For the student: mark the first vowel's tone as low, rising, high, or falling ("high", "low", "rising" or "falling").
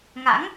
rising